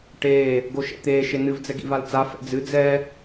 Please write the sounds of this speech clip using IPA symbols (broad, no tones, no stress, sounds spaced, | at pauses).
ʈ eː | ɡ o ʃ ɛ̰ t̪ eː ʃ e n ɨ v d͡z ɛ ɡ ḭ v a l t͡s a f ɛ̰ d͡z ɨ d͡z ɛ